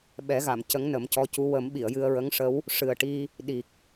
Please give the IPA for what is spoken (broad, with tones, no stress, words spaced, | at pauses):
ɓɛ˨˩˦ɣa˨˩˨m cə˧˥ŋnə˨˩˦mcɔ˧˥cu˧˥ wə˨˩˦m ɓi˨˩˨ə̯jɨ˧ə̯ɹə˧˥ŋʂə˧˥w | ʂɨ˨˩ə̯ ʈi˧ | ɗi˨˩k̚